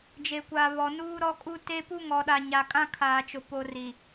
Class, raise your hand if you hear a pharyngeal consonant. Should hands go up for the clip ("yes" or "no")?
no